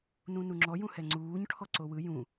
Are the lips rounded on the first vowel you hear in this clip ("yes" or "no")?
yes